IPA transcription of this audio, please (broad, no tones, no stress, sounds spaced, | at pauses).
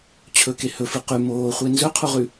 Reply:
t͡ɕʰ ɵ k e h ɵ f ɨ q ʉ m oː χʷ e n z ɵ qʰ u ʁ ʉ